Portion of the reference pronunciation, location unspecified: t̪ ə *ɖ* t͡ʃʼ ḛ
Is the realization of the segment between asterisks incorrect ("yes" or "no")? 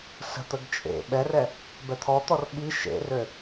yes